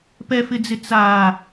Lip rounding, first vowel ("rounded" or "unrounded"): unrounded